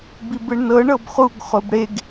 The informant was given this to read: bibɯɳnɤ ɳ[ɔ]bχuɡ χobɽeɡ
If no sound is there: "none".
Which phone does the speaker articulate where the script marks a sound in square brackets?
ɤ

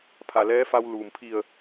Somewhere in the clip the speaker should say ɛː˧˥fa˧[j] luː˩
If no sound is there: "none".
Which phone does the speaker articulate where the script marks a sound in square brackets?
w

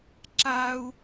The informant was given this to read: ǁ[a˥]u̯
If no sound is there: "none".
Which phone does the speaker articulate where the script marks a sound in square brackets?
a˥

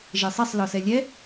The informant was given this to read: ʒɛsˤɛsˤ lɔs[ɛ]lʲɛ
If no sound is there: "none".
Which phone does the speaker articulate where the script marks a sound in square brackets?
ɛ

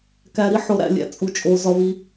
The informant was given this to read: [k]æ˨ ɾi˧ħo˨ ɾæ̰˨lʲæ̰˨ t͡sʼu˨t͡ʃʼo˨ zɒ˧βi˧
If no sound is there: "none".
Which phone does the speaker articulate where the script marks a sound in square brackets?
k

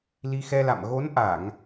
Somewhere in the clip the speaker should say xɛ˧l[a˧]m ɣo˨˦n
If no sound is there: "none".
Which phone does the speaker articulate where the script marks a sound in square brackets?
a̰˧˨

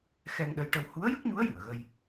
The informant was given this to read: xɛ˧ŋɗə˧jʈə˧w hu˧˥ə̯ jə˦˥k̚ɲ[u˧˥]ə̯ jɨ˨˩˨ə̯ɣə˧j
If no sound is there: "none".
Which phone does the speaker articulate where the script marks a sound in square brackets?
u˧˥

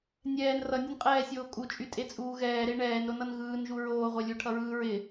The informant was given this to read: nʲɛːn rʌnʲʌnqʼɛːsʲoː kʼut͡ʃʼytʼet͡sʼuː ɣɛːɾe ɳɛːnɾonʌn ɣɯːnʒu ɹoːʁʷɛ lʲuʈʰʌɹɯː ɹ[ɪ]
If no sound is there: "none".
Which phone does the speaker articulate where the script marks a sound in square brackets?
ɪ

